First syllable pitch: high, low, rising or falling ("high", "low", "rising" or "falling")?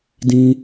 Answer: high